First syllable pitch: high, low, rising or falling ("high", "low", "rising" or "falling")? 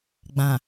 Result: low